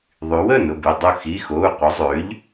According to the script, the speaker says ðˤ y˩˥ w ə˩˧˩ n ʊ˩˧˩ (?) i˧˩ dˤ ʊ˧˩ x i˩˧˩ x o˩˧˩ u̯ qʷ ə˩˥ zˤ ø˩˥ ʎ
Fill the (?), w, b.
b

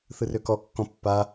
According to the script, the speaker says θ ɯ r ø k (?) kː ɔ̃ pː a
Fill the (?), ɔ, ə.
ɔ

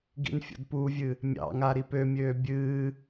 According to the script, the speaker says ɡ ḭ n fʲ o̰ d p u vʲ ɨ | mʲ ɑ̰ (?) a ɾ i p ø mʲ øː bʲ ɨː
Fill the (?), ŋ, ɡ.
ŋ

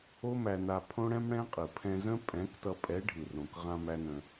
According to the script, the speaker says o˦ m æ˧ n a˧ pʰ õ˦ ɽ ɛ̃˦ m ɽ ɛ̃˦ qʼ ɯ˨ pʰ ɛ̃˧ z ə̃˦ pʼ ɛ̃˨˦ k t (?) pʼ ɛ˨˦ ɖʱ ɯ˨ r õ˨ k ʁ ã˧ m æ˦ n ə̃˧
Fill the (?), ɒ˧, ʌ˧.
ʌ˧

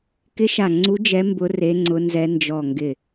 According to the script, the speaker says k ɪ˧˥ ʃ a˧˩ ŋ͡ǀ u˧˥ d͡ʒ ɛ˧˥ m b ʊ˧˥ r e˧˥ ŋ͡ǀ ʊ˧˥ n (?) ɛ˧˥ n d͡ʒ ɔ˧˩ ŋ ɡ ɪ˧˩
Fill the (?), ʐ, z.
z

